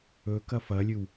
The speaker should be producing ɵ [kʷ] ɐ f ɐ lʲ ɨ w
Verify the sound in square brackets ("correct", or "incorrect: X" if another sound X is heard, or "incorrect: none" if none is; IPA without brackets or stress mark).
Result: incorrect: k